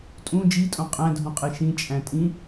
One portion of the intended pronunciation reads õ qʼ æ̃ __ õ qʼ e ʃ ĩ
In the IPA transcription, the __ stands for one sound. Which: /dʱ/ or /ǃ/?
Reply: dʱ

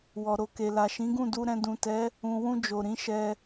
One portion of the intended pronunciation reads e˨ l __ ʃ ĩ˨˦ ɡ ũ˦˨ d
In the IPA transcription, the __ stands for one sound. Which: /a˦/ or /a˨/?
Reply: a˨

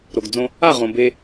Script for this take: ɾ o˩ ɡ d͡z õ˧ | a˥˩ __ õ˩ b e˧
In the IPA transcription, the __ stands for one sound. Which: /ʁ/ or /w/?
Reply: ʁ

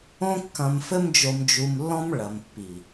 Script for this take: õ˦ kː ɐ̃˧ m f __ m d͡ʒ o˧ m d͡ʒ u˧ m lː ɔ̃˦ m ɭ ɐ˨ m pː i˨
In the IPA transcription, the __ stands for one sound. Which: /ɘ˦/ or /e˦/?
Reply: ɘ˦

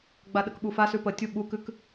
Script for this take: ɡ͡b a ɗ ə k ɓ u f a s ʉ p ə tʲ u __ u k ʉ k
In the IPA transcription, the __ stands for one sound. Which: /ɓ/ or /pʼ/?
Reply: ɓ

